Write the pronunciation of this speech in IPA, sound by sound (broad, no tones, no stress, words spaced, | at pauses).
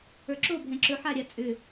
ə˞ǁo bʱɛ̃ǁɵ ħaɾʲa t͡sʼʏ